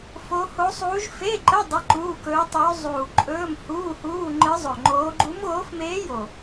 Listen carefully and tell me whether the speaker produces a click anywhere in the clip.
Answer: yes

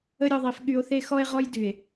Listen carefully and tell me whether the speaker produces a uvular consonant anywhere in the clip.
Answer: yes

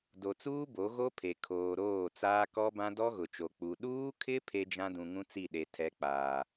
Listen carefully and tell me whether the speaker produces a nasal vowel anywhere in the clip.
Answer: yes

